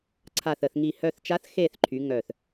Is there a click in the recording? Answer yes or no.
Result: yes